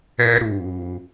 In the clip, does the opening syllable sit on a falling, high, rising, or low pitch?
high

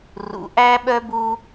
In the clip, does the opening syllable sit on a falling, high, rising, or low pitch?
low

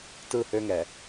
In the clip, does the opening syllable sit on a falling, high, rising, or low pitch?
falling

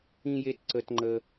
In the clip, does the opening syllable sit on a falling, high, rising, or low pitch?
high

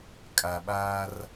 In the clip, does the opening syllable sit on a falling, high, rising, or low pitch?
low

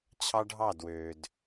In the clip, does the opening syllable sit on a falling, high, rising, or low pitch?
high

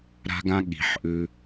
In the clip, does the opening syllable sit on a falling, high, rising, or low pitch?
high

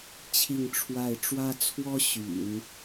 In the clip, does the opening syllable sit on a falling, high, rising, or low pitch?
falling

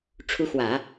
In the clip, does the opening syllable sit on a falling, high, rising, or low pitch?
rising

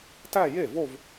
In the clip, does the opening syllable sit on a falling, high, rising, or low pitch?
falling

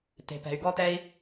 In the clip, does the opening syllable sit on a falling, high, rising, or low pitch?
low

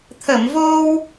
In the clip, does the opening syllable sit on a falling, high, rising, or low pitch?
low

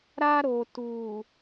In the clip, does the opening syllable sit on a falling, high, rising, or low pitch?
high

